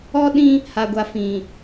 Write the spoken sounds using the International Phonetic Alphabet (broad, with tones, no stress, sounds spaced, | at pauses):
ɔ˦ ɗ ĩ˦ | h a˨ ɡʷ a˨ f ĩ˨